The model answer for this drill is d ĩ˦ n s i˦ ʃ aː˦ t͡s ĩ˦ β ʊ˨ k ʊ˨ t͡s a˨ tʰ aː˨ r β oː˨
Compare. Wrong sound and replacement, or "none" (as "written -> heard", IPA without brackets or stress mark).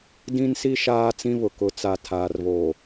none